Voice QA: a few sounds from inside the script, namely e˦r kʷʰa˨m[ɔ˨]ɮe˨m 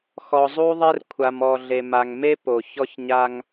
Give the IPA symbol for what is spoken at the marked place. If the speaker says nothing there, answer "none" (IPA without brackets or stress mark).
ɔ˨